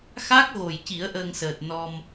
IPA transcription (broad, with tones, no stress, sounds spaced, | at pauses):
x a˦˥ k̚ ɣ o˨˩ j c i˨˩˦ ə̯ ʔ əː˧ ŋ s əː˨˩ t̚ n ɔ˧ m